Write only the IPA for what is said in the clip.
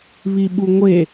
β i ɓ u ŋʷ e

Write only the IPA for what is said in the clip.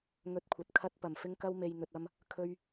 ŋ ɵ˨˥ t̚ kʷʰ ɐ˨ t̚ kʰ ɐ˧ t̚ p ɐ˨˩ m f ɪ˧ ŋ k ɐ˧ w m e˨ j n̪ ɵ˨ t̚ ɐ˧ m | kʰ ɵ˧ ɥ

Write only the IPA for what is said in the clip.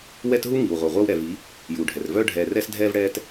w ɛ˦ t ɦ u˦ ŋ i˨ w ʁʷ œ˨ ʁʷ œ˦ w ɾ ɛ˨ v i˨˦ | j uː˨ ɖʱ ɛ˨ r v œː˦ ɖʱ ɛː˨ r ɛː˦ s dʱ ɛː˦ v ɽ ɛː˦ t

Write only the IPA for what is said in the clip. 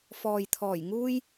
f ɔː˨ j t̪ʰ ɔː˨˩ j ŋ uː˥ j

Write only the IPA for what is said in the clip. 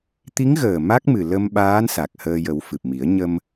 t̪ i˧˥ ŋ ɣ əː˨˩ m a˦˥ k̚ m ɨ˨˩ l ə˧ m ɓ aː˧˥ n s a˨˩ k̚ h əː˧ j ə˨˩˦ w f ɨ˨˩ p̚ m i˨˩˦ ə̯ ɲ ə˧ m

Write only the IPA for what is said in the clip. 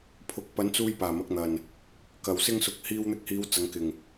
pʰ ʊ˧ k̚ p ɐ˨˥ n t͡s uː˧ j p aː˨˩ m ɐ˧ k̚ n̪ ɐ˨˩ n | k ɐ˨˩ w s ɪ˥ ŋ s ʊ˧ k̚ h iː˧ w n̪ ɪ˧ k̚ h iː˨˧ w t͡s ɐ˨˧ ŋ k ɪ˨˩ ŋ

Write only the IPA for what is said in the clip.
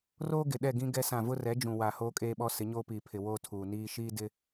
r oː˦ ɡ ɪ˨ ɗ ɛ˦˨ ɡ ĩ˦ ɡ ɛ˦ s ã˦˨ v ʊ˦ r ɛ˨˦ d͡ʒ ũ˨ w a˨ h oː˦ kʼ eː˦ ɓ ɔ˦ s ɪ˨˦ ɲ oː˦ p iː˨ pʰ ɪ˨ w oː˦ tʰ uː˨ n iː˦ ʃ iː˦ d ɪ˦

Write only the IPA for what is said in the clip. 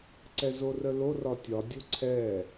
ǀ ɛ z o r ə l o r ɒ tʲ ɒ dʲ o ǀʰ ɛ

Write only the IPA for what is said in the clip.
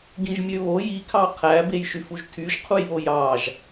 ɡ ĩ ʒ mʲ ø β o j i kʰ ɑ qʰ æ b e j ʃ y f u ʒ tʰ y ʒ qʰ u j β o j ɑ ʒ

